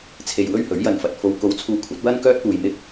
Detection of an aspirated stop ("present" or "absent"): present